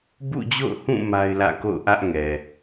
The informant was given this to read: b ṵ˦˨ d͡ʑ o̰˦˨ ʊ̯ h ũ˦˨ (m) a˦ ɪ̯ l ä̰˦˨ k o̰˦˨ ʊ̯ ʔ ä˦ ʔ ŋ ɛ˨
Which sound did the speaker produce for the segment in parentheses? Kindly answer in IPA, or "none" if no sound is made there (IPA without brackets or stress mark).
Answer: m